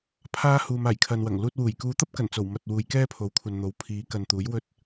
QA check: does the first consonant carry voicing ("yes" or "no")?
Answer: no